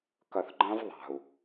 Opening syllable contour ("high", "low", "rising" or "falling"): low